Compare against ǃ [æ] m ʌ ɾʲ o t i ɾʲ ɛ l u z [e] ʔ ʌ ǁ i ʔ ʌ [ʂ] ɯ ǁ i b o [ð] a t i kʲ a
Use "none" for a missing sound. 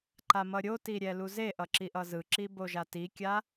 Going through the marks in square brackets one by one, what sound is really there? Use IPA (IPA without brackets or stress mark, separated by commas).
a, e, z, ʒ